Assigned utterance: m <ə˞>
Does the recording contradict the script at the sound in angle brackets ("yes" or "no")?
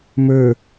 no